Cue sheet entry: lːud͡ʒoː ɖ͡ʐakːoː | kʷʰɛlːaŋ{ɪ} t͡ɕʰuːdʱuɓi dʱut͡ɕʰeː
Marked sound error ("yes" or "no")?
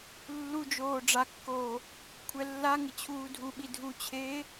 no